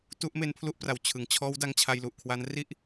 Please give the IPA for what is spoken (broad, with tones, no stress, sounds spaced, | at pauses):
t u˦˥ ʔ m e˧ n pʰ l u˥˩ ʔ p r a˨˩ w t͡ɕʰ ɯ˩˦ ŋ t͡ɕʰ ɔː˦˥ w d a˧ ŋ t͡ɕʰ a˧ j l u˨˩ ʔ kʰ w a˦˥ n r i˥˩ ʔ